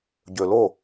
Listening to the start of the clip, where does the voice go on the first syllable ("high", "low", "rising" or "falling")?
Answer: low